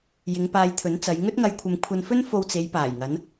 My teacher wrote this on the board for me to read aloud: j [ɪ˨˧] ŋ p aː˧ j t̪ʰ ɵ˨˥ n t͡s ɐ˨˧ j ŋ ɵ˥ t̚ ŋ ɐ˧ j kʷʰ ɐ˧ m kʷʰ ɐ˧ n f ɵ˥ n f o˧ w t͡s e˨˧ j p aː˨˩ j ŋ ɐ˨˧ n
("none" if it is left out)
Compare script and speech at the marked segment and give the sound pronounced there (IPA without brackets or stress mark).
ɪ˨˧